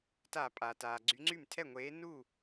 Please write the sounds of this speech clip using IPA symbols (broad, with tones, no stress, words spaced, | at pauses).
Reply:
ta˧˩˧pʼaː˩taː˩ ɡ͡ǀy˨˥ŋ͡ǀy˥˩m tʰɛ˥˩ŋʷeː˨˥ nu˥˩